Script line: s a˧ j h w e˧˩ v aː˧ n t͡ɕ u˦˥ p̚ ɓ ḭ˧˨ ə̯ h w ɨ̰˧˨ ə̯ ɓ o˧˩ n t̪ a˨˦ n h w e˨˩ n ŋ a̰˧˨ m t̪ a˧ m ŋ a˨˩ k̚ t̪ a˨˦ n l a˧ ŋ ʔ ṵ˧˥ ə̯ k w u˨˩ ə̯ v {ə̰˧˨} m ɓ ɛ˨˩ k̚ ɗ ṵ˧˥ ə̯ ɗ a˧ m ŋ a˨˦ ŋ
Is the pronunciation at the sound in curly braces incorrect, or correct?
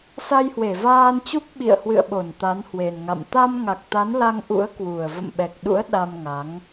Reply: correct